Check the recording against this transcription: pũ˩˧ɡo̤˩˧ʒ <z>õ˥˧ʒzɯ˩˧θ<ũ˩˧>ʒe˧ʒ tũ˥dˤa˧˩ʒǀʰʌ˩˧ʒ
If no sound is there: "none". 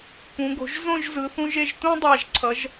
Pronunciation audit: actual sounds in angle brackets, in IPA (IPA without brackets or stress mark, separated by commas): z, ũ˧